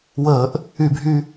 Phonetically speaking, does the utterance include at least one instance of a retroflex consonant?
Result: no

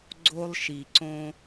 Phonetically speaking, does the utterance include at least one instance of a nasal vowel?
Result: yes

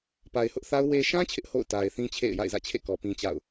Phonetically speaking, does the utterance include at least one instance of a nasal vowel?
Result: yes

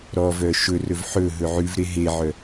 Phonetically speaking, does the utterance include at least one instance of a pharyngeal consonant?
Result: yes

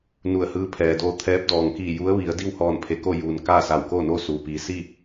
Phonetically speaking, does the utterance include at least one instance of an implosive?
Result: no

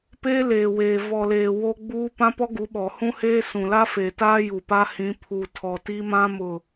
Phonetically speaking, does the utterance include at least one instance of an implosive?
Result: yes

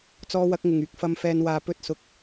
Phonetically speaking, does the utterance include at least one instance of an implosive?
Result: no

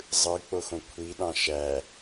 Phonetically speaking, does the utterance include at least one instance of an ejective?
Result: no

